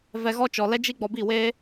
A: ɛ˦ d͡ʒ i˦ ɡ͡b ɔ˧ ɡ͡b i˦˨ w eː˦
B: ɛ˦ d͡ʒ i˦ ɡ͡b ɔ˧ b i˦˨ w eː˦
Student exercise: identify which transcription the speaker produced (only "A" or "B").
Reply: B